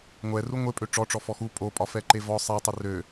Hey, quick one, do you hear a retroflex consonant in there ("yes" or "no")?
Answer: yes